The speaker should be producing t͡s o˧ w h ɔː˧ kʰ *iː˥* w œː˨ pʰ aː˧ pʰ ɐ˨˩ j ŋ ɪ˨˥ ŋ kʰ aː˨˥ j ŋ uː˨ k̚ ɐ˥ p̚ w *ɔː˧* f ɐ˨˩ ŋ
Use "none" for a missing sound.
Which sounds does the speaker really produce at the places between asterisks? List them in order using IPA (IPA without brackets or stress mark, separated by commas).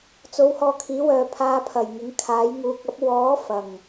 iː˨˥, ɔː˨˥